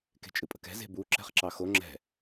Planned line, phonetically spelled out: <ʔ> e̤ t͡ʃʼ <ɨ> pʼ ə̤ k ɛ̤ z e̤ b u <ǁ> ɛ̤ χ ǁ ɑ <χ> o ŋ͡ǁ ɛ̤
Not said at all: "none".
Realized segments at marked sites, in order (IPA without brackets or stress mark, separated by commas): k, ɨ, ǁ, x